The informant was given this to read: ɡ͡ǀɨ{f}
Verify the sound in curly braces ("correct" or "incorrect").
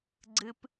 incorrect